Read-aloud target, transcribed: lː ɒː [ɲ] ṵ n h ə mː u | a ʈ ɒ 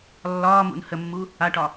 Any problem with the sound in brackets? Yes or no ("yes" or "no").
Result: yes